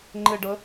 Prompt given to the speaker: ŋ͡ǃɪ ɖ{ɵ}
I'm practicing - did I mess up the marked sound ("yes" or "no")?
yes